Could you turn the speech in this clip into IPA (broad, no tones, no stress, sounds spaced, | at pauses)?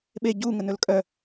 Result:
ɓ e ɟ u ŋ ə n ɵ l kʼ œ